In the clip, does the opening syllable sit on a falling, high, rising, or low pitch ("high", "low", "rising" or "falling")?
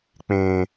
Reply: low